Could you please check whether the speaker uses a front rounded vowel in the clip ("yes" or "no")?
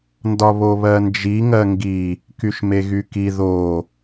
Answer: yes